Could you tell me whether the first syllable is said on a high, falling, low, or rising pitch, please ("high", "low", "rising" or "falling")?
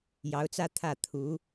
rising